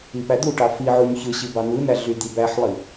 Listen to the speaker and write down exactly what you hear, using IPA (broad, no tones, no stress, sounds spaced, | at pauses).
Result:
i p æ d̪ u ʈ ɑ f i ʕ u ɲ ç ɯ ɕ i b ɑ n̪ ɯ n̪ æ ɮ y d̪ i b æ ħ lˠ i